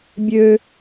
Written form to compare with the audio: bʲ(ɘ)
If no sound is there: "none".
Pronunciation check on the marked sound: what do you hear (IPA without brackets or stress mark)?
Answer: ø